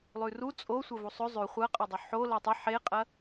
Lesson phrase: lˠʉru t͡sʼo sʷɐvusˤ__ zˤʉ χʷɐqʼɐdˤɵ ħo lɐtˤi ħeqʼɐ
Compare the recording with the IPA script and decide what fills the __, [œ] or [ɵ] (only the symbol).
ɵ